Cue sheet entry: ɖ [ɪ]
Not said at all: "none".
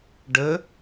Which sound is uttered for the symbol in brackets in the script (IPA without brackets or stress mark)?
ə